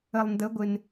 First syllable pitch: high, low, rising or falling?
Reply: low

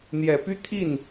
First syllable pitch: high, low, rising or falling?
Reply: low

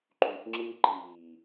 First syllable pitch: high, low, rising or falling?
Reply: low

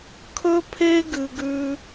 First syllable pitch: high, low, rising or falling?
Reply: high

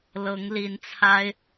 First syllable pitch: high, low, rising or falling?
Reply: rising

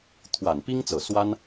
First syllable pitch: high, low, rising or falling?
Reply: low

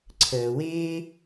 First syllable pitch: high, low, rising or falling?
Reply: low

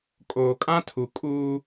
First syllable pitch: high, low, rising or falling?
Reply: low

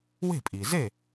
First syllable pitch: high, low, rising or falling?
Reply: falling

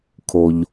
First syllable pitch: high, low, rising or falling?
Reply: low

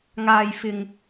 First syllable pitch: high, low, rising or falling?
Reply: low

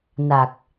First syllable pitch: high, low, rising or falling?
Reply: low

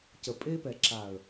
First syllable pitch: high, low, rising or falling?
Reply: low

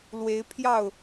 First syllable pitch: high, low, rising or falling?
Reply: rising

